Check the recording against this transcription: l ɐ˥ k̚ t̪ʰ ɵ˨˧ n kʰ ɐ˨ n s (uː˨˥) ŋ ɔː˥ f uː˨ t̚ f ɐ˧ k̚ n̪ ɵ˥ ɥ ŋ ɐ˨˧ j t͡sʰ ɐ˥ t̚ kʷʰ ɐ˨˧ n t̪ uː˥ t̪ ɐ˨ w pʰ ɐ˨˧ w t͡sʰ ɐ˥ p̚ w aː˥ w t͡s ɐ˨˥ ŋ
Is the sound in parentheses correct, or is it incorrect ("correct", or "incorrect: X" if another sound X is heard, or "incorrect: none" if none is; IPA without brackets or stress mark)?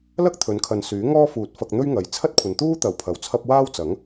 incorrect: yː˨˥